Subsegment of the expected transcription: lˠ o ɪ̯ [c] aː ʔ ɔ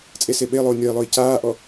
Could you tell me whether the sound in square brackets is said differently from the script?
no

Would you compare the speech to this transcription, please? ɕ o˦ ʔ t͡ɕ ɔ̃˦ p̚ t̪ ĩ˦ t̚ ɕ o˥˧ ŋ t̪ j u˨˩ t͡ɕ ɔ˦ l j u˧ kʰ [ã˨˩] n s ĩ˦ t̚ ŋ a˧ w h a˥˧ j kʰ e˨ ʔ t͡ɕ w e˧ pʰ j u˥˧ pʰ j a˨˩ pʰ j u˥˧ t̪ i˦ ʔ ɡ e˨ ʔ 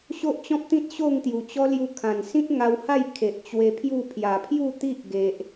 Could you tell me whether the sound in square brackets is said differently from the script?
no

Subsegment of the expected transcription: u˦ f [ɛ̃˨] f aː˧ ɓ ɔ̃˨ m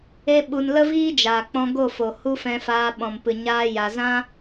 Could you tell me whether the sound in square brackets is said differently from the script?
yes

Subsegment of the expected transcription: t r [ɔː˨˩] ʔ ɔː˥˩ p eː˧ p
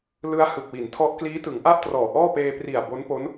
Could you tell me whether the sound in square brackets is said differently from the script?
no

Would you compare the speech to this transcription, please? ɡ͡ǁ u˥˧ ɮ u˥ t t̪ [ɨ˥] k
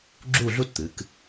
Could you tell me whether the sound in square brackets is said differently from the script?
yes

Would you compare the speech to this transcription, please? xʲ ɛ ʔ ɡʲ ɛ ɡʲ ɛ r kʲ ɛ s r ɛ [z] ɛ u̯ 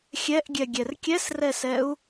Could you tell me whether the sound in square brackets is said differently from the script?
yes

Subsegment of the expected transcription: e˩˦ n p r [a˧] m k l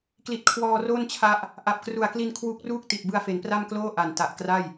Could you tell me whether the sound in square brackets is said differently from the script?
yes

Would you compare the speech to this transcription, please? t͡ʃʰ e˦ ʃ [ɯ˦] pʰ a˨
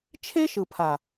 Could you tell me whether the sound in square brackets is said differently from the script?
yes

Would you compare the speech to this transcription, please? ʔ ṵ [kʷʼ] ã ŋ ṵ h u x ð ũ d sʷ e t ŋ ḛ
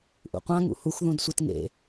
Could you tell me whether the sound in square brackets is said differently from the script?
yes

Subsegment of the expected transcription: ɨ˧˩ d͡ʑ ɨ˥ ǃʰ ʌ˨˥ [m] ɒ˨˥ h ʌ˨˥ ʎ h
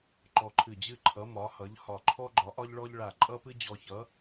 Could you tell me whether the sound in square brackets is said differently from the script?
no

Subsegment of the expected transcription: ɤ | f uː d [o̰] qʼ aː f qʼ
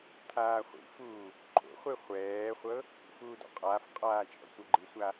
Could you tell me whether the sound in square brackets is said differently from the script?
yes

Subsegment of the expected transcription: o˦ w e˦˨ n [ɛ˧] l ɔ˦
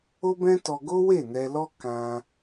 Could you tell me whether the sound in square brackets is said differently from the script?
no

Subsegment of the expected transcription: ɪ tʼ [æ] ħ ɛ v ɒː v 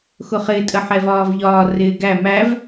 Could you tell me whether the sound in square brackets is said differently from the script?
yes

